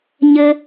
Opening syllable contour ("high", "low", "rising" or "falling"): high